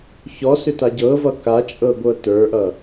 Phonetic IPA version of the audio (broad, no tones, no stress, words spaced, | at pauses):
çɔsʏ taɟɤvʌ kat͡ʃʼɤ ɡʷɤtə˞ʔʌ